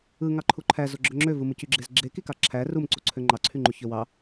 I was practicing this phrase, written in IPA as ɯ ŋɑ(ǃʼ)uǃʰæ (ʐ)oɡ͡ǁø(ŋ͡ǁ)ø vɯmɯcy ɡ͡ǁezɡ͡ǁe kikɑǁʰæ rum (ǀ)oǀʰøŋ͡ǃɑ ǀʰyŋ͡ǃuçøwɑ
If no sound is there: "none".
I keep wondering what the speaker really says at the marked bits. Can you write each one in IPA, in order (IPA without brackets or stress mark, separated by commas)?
ǃʰ, z, ŋ͡ǁ, ǀ